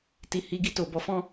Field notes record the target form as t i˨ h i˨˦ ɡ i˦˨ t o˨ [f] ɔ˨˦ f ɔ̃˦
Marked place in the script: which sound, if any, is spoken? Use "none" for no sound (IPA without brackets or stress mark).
b